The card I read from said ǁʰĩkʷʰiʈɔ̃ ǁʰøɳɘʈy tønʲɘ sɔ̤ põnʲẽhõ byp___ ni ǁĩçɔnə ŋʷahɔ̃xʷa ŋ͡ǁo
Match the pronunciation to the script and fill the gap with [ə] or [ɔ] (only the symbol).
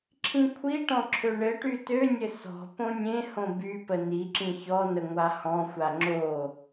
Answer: ə